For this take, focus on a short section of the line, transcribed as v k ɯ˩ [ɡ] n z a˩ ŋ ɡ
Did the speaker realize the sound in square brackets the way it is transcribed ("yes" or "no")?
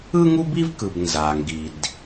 no